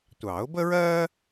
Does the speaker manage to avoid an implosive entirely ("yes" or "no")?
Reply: yes